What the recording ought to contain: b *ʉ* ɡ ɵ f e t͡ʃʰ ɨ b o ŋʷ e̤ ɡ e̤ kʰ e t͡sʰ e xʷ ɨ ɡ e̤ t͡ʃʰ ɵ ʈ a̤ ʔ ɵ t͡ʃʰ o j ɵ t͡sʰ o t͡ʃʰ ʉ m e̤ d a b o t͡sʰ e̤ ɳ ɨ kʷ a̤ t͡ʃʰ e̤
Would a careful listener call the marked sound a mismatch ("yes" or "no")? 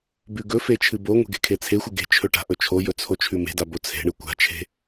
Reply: no